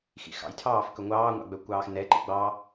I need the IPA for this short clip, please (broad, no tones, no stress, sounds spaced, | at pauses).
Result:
x ḭ x ɑ̰ j tʰ ɑː f k ɵ ŋʷ ɑː ŋʷ ɑ̰ ɡ͡b œ kʷ ɑː x n ɛ ǃ ḭ ɡ͡b ɑ